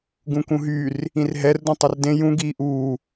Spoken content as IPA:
ɡ ũ k ũ ɦ y r | ĩ r ɦ ɛ r d ũ tˤ ø r d ẽ j ũ ɡ iː ʔ uː

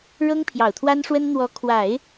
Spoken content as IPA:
ɻ ɤ˥ ŋ pʰ j ɑ˨˩ ʊ̯ t̪ʰ w a˥ n ʂ w ə˥ n n̪ w ɔ˧˥ kʰ w a˨˩˦ ɪ̯

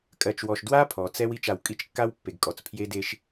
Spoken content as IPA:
kʼ ɜ˨ t͡ʃ w ɔ˨ ʃ d w a˦ pʰ ɔ˨ t͡s ɛ˦ w i˦˨ t͡ʃ a˨ w kʼ i˦ t͡ʃ kː a˦ w pː e˨ ɡ kʼ ɔ˨ t͡s pʰ j e˦ d e˦ ʃ

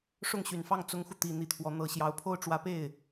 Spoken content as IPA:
ʂ ʊ˥˩ ŋ ɕ y˨˩ n f ɑ˥˩ ŋ t͡s ʊ˥ ŋ x u˨ t̪ i˨˩ n̪ i˥˩ t̪ʰ w ɔ˧˥ n̪ ɤ˨˩ ɕ j ɑ˧˥ ʊ̯ pʰ o˥ ʊ̯ ʈ͡ʂ w ä˧˥ p e˥˩ ɪ̯

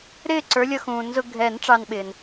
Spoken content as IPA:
ɾ ɪː˥˩ ǀ ə˞˨˦ lʲ ʌ˦ x ũː˨˩˦ n z ʊ˦ ɡʱ ɛ˨˩˦ n ʈ͡ʂ ɑ˦ n ɓ ɪː˩ n

